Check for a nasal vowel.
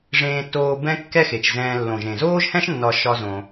present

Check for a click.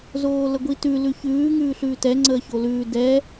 present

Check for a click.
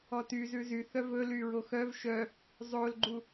present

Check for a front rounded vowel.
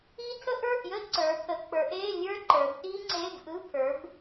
absent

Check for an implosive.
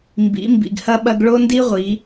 present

